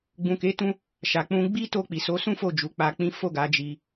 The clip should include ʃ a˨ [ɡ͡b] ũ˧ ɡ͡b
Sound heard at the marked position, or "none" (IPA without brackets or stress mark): k͡p